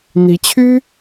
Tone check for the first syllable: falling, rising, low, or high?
rising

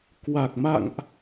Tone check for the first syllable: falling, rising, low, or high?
low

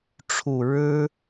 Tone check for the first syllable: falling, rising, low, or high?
low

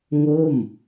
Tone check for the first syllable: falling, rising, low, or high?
falling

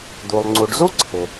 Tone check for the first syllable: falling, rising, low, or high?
low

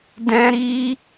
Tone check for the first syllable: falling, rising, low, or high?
high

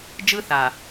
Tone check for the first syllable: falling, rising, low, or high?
high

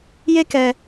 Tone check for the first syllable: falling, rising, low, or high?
high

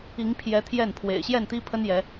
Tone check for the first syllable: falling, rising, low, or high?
rising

